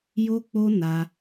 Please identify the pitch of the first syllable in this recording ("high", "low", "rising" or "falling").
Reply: high